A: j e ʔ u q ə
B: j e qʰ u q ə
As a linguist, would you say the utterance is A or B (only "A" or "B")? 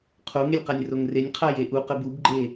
A